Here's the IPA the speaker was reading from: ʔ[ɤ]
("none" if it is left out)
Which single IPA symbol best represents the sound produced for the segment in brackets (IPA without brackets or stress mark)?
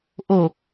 o